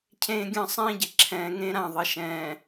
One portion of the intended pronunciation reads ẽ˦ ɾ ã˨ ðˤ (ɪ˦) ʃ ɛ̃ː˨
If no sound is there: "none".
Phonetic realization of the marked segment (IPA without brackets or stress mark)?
ɪ˨